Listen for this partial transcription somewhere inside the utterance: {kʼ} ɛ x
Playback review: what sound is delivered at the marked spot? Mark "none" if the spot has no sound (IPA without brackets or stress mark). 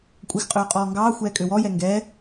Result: kʷʼ